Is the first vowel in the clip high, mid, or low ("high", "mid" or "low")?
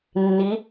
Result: high